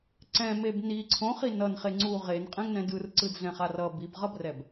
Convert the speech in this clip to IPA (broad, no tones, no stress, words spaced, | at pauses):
ǀɛ̃meb ni ǀʰõχi nʌn χeŋ͡ǀu ʁenqʼɛ̃ŋnɛ̃ dɯrǀɯdɮɛ̃χar ʌ bibʁʌbrɛb